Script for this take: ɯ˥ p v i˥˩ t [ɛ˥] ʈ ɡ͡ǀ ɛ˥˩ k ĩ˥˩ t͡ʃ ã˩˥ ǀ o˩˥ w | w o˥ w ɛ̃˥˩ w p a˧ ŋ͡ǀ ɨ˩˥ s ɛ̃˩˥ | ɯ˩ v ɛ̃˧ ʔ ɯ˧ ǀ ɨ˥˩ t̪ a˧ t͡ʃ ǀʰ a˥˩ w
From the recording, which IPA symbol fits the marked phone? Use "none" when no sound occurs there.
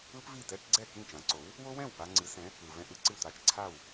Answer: ɛ˥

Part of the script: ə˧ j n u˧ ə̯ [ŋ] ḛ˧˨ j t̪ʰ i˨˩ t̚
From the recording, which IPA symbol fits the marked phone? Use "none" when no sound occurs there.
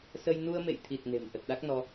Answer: m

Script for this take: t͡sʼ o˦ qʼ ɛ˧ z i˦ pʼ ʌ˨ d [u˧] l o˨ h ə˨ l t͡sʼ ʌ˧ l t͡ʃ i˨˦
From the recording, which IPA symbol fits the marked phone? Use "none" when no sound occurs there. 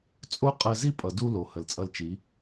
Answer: u˧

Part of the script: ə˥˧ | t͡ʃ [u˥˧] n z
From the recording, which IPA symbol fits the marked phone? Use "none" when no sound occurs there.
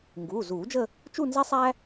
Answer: u˥˧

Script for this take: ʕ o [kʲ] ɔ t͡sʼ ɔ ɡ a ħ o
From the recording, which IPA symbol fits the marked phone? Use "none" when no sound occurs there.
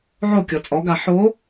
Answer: kʲ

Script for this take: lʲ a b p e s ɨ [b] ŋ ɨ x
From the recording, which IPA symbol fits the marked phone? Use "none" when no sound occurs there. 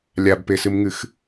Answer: m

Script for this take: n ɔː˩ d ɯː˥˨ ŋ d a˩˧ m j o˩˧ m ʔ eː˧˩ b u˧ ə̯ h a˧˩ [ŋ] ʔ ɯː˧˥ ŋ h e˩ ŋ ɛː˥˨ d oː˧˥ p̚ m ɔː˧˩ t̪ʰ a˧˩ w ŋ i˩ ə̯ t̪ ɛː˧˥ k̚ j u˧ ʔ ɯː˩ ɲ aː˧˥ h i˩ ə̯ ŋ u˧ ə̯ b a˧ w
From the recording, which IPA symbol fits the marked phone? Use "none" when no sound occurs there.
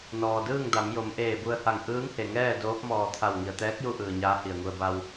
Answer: ŋ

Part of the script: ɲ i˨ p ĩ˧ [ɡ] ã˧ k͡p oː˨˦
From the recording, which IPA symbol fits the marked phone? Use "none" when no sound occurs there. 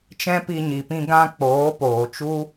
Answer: ɡ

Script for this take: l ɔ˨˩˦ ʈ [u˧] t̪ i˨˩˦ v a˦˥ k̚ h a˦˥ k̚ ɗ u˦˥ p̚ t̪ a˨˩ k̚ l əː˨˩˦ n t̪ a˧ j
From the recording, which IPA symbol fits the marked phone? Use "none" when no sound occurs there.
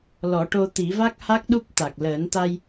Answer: o˧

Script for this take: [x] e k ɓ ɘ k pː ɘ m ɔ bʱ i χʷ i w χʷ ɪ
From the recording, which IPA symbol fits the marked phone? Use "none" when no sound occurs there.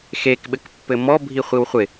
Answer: x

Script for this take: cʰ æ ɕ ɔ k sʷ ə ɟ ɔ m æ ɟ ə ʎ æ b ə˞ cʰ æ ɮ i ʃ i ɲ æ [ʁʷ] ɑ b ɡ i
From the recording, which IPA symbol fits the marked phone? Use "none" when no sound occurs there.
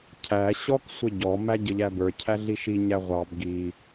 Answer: ʁʷ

